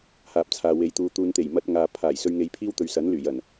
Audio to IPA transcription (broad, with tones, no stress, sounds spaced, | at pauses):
h aː˨ p̚ t͡sʰ aː˨ w e˨˥ j t̪ uː˨˧ t̪ uː˨ n t̪ e˨˩ j m ɐ˧ t̚ ŋ aː˨ pʰ aː˨˩ j s ɵ˧ ɥ ŋ e˨˧ j pʰ iː˥ w t̪ ɵ˨ ɥ s ɐ˨˥ n l yː˨˩ j ɐ˨˩ n